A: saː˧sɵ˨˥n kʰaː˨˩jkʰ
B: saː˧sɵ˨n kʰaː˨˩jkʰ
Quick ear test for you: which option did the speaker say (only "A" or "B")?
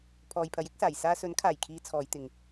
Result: A